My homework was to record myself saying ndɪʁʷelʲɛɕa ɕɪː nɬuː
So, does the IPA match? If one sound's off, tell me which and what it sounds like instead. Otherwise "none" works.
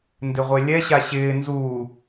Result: ɬ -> z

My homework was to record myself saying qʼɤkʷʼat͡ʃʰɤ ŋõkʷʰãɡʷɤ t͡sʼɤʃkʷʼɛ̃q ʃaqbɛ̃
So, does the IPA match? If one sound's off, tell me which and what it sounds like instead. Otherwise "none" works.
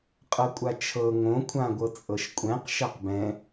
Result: none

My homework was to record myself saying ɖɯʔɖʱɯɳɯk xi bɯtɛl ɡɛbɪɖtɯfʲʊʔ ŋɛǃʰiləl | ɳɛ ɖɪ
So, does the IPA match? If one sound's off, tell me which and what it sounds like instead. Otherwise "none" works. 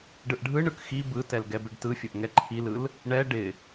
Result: ə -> ɯ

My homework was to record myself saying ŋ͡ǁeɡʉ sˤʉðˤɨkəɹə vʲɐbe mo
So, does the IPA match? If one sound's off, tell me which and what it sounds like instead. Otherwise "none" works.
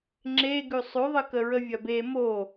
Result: none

